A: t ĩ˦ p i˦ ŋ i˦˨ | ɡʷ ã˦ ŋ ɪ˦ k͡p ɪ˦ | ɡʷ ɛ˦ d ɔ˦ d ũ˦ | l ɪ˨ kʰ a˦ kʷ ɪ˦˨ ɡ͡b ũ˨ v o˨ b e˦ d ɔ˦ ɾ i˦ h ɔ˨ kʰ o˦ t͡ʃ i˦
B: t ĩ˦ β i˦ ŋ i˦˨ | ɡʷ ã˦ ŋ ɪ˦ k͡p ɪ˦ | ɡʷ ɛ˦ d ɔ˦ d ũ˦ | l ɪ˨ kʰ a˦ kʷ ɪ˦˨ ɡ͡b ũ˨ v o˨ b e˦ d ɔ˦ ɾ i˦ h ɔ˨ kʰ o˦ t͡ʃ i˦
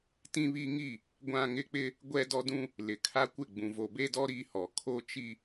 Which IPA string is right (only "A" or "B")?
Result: B